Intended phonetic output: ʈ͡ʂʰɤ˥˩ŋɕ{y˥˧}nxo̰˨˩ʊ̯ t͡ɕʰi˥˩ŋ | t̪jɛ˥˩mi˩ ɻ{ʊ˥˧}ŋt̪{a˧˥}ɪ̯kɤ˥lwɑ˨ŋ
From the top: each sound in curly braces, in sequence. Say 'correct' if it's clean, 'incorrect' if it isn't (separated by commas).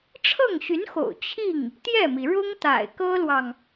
incorrect, incorrect, incorrect